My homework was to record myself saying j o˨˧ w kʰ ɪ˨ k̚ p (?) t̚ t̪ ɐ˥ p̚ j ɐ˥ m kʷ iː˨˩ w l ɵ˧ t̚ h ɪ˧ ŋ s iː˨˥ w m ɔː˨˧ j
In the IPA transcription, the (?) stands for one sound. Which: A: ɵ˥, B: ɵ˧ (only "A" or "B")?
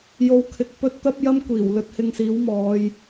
A